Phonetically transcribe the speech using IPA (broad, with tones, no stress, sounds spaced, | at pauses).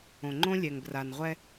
õ˨ ŋ͡ǃ õ˦ lʲ ɛ˨ ŋ b r a˨ n ʁʷ ɛ˦